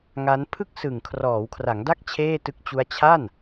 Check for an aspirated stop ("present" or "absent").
present